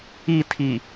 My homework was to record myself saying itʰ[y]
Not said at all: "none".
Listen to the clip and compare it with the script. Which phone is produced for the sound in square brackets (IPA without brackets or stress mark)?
i